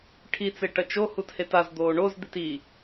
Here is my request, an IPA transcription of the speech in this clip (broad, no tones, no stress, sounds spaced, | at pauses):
ʈʰ i t͡s e ʈ ɐ t͡ʃ o h u t h e t a z d̪ oː ɳ o z d̪ i t i